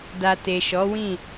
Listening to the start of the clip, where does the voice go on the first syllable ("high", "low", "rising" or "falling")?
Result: low